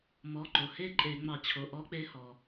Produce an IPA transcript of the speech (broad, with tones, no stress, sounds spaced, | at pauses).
m ɔ˩˧˩ ǃ o˩ h e˥˧ ǃʼ e˧˩˧ ŋ͡m ɑ˧˩˧ t͡ɕʰ o˩˧˩ ʔ ɔ˧˥ k͡p e˧˥ h ɔ˩